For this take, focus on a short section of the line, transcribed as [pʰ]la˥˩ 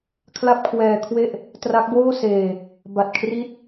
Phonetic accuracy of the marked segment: incorrect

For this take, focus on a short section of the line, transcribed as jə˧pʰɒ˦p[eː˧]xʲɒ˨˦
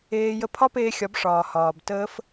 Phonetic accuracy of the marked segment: correct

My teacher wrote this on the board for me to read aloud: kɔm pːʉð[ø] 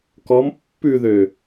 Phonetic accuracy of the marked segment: correct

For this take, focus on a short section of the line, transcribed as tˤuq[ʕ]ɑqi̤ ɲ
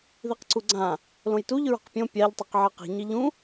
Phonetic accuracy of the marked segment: correct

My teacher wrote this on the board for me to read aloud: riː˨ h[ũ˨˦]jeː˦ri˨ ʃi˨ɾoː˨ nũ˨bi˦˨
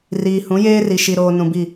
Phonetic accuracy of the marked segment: correct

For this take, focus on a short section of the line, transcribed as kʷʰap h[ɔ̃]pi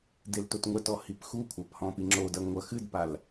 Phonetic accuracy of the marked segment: correct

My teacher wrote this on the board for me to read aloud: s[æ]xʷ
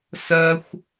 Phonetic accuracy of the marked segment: incorrect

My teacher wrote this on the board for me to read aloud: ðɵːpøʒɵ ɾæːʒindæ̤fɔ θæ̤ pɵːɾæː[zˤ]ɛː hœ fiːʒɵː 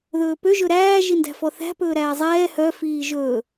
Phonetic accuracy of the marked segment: correct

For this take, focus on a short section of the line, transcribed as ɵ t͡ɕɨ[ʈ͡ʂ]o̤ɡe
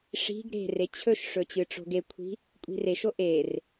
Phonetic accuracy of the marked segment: correct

